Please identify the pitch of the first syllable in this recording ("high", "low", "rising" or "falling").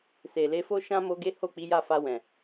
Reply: low